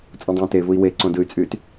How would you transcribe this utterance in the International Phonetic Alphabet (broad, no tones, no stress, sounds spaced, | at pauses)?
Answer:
t͡sʼ ũ dˤ ẽː t e v u i̯ w e ǀ õ d ɯ y̯ t͡sʼ yː t